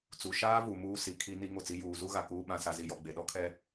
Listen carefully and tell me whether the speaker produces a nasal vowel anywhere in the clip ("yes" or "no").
yes